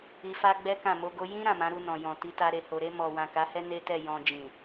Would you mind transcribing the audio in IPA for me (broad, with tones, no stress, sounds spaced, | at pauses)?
i˧ f a˦ ɡ͡b ɛ˦ k ã˦˨ m o˧ ɡ o˦ j ĩ˦ ɾ ã˦˨ m ã˨˦ ɾ u˧ n ɔ̃˨ j ɔ̃˨ t i˨˦ t a˧ ɾ e˨ h o˨ ɾ e˧ m ɔ˨ w ã˨ k a˨˦ h ɛ˦ n e˦ t ɛ˦˨ j ɔ̃˨ d͡ʒ ĩ˨